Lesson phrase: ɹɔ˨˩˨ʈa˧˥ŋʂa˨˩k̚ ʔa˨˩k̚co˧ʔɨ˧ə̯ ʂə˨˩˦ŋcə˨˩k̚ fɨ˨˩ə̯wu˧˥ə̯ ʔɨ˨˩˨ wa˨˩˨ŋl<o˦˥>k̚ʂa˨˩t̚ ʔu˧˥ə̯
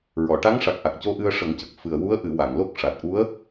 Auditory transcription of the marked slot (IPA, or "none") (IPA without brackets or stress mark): o˦˥